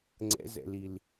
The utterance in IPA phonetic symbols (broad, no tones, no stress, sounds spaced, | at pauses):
ŋ͡ǀ ɛ̰ z ɛ̰ l i l